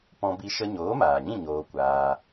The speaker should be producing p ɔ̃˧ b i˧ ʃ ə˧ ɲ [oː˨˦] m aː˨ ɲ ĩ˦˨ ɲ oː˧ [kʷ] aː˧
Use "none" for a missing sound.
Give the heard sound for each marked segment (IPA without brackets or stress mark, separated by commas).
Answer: oː˨˦, kʷ